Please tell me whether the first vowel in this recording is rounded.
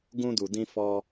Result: yes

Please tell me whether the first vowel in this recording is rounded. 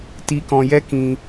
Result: no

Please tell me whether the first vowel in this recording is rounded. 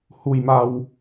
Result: yes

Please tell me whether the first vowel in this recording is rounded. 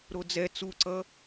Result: yes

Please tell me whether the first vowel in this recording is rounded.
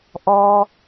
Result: yes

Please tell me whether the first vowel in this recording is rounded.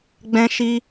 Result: no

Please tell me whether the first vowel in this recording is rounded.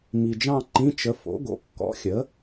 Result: no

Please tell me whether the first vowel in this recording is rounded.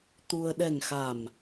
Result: yes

